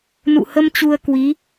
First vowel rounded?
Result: yes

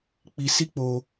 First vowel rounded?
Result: no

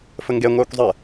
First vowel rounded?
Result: no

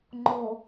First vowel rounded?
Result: yes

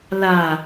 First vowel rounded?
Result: no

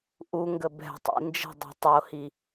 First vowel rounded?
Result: yes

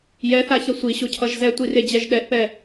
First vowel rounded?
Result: no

